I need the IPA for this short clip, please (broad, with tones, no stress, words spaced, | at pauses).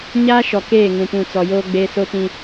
ɲaː˦ʃɔ˨ keː˦˨ ŋũ˨pũ˨t͡sɔ˨ joː˦ɡ͡beː˦ so˦tĩ˦